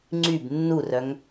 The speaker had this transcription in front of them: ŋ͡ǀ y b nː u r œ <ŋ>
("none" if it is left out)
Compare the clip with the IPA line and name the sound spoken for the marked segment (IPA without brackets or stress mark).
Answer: ŋ